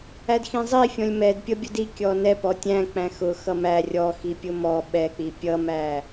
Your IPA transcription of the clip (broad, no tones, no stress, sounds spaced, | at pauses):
æ d x ĩ zˤ i fʲ ɔ̃ lʲ m ɛ d pʲ ʌ bʲ ʊ d i kʲ ɔ n ɛ p ɔ tʲ æ̃ k͡p æ̃ x ʊ x ʌ m æ rʲ ɔ x i pʲ ʊ m ɔ ɓ ɛ k͡p i pʲ ʌ m æ